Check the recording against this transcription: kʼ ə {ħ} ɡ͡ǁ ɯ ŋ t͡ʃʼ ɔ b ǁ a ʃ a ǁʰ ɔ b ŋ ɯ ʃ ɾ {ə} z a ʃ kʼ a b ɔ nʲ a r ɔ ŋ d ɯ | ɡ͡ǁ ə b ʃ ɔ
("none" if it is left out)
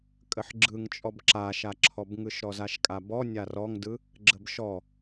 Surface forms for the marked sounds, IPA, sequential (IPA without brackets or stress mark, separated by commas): ħ, ɔ